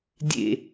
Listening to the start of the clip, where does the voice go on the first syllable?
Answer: low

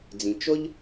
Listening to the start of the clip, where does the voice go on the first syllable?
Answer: low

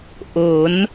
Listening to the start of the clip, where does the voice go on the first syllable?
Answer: rising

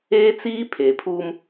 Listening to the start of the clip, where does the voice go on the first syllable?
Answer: high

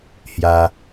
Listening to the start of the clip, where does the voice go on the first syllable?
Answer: high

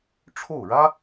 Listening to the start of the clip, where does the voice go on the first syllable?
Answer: falling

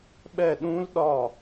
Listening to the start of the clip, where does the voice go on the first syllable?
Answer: falling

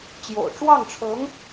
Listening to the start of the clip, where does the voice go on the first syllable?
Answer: low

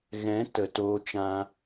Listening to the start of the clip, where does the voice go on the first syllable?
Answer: rising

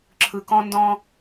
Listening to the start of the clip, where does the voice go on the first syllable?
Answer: low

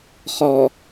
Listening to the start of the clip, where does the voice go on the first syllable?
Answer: low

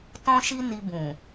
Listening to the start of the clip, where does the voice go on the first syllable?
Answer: high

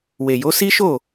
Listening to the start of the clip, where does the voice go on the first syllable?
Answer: low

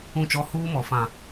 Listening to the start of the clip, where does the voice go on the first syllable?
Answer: falling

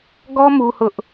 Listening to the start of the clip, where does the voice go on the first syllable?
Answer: high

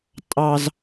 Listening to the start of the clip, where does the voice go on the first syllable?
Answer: low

